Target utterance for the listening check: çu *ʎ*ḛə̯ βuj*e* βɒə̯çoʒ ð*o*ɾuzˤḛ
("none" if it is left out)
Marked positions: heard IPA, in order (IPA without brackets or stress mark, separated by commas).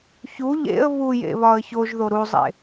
ʎ, ḛ, o